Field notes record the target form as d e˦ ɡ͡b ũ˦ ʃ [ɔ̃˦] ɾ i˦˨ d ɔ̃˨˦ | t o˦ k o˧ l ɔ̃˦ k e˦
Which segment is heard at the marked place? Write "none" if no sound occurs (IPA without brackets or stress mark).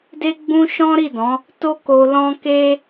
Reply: ɔ̃˦